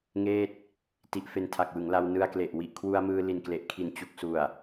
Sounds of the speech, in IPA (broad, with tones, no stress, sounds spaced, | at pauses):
ŋ eː˥˩ t̚ | t i˦˥ ʔ f e˧ n tʰ a˨˩ k̚ w ɯ˩˦ ŋ l a˧ w n ɯ˧ a̯ k l e˨˩ ʔ w i˨˩ ʔ kʰ w u˧ a̯ m ɯː˧ l i˨˩ n k l e˨˩ ʔ kʰ i˨˩ n t͡ɕ u˨˩ k̚ s u˨˩ a̯